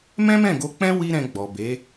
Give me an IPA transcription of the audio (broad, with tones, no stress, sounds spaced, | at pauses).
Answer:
m ɛ̃˦ m ɛ̃˦˨ ɡ o˧ k͡p ɛ̃˦ w i˦ ɾ ɛ̃˧ ɡ͡b ɔ˨ b e˨˦